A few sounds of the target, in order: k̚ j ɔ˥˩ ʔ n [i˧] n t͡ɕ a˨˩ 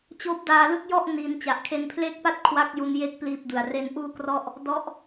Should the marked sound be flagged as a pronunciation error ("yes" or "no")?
no